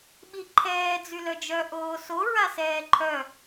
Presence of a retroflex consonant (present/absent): absent